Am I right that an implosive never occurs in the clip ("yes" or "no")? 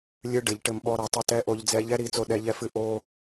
no